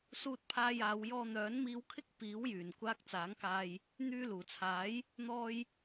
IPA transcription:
s uː˧ t̚ pʰ aː˧ j aː˨˧ w j ɔː˧ n̪ œː˨˥ n m iː˧ w kʰ ɪ˥ k̚ p iː˨˥ w j yː˨˩ n kʷ aː˧ k̚ t͡s aː˨˥ ŋ k aː˧ j | n̪ yː˧ l uː˨˩ t͡sʰ aː˨˥ j | n̪ ɔː˧ j

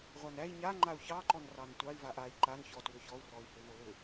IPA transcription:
ʁʷ a n æ i̯ ɲ a ŋ͡ǃ a u̯ ç ɑ ǃ ɔ n r ɑ n tʷ ɑ i̯ v a ʔ a i̯ ǃ a n ç ɔ t w ʏ ç ɔ u̯ r ɔ i̯ h ʏ v o l ʏ

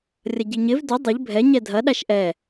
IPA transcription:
rʲ ɐ ɟ i ɲ ɪ v d ʏ dˤ ɪ ʎ bʱ ɛ ɲ ɛ dʱ ɐ ɗ a ʃ ʔ ɛ

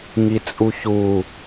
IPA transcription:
ŋ i t͡sʼ u ç u

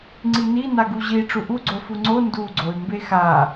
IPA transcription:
ŋ͡ǀ i n i n a ɡ u ʑ i ʈ͡ʂ u ʔ u ɡ͡ǀ o f u ŋ͡ǀ o n d u ɡ͡ǀ o y̯ m b e x a

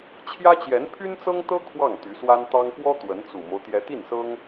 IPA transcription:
t͡ɕʰ j ä˥ t͡ɕ j ɛ˧˥ n pʰ y˥ n t͡s ɤ˥ ŋ t̪ ɤ˥ kʰ w ɑ˥˩ ŋ t̪ y˧˥ s w a˥ n t̪ ɑ˥ ŋ p w ɔ˥ t̪ w ə˧˥ n t͡s u˨˩ m o˦ ʊ̯ t̪ j ɛ˧˥ t̪ i˥˩ n s ɤ˥ ŋ

